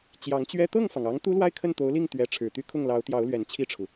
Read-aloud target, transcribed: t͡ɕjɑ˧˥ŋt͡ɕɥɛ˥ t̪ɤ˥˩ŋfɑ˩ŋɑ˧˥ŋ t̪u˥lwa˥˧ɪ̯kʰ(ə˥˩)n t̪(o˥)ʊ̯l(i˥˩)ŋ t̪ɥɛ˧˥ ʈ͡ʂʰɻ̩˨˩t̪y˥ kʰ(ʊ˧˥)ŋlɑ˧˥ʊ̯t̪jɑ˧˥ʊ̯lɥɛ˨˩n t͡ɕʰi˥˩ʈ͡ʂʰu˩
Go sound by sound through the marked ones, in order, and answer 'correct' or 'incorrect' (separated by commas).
correct, incorrect, correct, incorrect